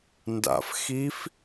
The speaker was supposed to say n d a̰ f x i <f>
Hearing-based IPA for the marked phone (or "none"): f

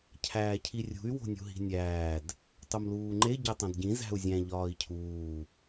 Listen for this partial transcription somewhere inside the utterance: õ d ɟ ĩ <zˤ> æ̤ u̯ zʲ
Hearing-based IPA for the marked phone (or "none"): z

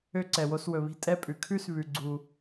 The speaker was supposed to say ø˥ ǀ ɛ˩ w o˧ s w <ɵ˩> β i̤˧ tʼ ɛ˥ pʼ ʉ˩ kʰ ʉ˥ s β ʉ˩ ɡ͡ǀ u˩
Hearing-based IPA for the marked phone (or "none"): ɵ˩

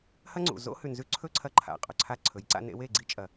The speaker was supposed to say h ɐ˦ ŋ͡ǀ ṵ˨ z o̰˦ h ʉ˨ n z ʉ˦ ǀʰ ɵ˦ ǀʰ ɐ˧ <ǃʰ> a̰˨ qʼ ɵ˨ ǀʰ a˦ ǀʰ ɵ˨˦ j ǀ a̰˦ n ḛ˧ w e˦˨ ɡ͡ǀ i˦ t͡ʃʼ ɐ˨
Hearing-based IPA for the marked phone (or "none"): ǃʰ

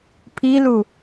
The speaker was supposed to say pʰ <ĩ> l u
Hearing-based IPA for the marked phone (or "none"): i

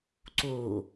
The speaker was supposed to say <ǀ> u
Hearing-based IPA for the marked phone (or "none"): ǀ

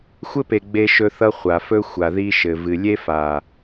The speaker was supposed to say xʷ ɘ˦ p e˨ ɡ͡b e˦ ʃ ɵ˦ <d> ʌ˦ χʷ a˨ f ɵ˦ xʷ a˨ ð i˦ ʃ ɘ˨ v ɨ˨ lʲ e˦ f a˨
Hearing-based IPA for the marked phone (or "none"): θ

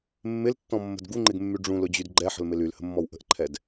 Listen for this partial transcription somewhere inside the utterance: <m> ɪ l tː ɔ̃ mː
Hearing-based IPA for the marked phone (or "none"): mː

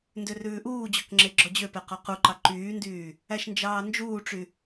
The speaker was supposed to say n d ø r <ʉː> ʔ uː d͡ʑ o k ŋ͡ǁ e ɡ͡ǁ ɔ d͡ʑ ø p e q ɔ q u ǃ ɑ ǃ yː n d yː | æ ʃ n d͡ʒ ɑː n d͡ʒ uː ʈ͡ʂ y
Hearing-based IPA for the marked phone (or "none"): ʉː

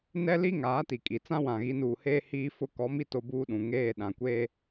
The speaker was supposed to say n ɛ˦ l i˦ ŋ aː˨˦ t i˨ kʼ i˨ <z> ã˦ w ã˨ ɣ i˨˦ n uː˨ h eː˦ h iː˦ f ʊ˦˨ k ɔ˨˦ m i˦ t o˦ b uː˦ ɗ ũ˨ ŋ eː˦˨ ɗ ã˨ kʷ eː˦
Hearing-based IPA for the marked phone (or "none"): t͡s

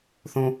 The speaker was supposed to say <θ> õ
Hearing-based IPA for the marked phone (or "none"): θ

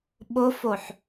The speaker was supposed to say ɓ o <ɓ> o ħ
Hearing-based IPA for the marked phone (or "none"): f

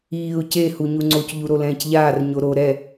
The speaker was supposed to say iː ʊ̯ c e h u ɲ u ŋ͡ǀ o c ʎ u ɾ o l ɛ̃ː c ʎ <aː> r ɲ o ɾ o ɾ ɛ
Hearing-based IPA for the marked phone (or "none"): aː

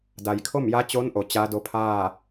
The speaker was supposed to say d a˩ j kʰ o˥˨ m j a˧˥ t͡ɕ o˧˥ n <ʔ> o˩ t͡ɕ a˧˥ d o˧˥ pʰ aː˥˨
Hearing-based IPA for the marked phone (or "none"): ʔ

